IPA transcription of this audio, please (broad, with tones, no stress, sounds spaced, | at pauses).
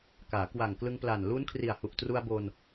k aː˩˦ k w a˨˩ ŋ k l ɯ˧ ŋ p l a˨˩ n l u˦˥ n kʰ r i˨˩ a̯ h u˨˩ ʔ t r u˧ a̯ b o˧ n